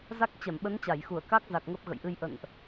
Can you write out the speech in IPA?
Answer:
za˦˥k̚ t͡ɕɛ˧˩mɓə˨˦n t͡ɕa˧˩jxu˧˩ə̯ ka˦˥k̚za˨˩k̚ ŋə˦˥p̚ɣə̰˧˨jʔɨ˧j ʔə̰˧˨nʔ

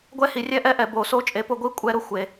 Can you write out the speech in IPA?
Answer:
ɡʷɛ˥˧hi˩˥ rʲɛ˦˥ʔɛ˥˧ ʔɛ˩˥bo˩˥ so˦˥t͡ʃʼe˩˥pʊ˧ɡʷi˥˧ kʷʼɛ˦˥ɾʊ˩xʷe˩

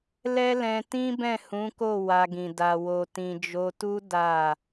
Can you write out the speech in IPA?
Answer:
lɛ˦lɛ̃˧ tĩ˦bɛ̃˦˨ hũ˨˦ko˦˨ wa˧ɡĩ˨ da˨wo˨ tĩ˨d͡ʒo˧tu˦ da˦˨

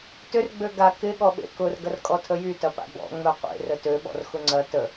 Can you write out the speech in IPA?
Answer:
tʏr ɡ͡bøɡa kɪɠɔɓḛ kʊr ɡɐrkʼɔtʰəjy tɐpa̰bɔ̰ ŋ͡mœqʷḛ rətøɓɔ̰r xʊŋ͡ǀɐ tə

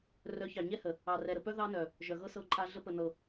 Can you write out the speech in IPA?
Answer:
rœ˨˦çɑ˨ɲɛ˦hə˨ | ɑ˨rɛ˨ɾə˨pœ˦ ðɑ˦nœ˨ | ʒœ˨ɣɤ˦sɤ˧ǃʼa˧ ɮə˧pə˨ nɤ˨

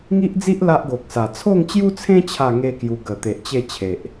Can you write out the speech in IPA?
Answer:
ŋi˦ʔd͡zi˦ʔ la˦ʔɡo˨k̚sa˨˩ t͡sʰo˥˧ŋt͡ɕju˦t͡sʰẽ˦ t͡ɕʰa˥˧ŋe˦kju˧ ɡə˨˩t̪e˨ʔ t͡ɕe˥˧ t͡ɕʰe˨ʔ

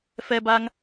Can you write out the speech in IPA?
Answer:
fɛ˧ba˧ŋ

